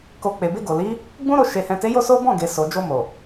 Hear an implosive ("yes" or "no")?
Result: no